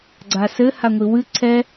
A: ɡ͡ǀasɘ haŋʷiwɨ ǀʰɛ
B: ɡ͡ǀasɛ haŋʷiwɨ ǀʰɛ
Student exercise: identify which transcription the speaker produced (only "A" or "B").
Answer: A